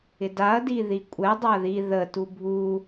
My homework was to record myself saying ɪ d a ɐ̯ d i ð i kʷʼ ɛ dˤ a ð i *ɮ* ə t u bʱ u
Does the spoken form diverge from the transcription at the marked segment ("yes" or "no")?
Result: yes